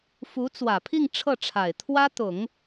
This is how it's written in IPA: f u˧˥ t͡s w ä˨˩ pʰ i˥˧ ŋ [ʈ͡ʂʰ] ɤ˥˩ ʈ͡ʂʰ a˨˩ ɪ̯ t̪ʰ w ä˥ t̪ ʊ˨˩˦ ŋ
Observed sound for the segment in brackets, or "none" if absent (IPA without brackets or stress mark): ʈ͡ʂʰ